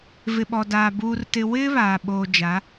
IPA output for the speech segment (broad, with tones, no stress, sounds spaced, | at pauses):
v ɪ˨ ɓ ɔ˨ d aː˨ b uː˨ r t ɪ˨ w ɪ˦ β aː˨ ɓ oː˨ d͡ʒ a˨˦